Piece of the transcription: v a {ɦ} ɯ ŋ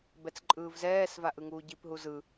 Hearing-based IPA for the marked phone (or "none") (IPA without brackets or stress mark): ʔ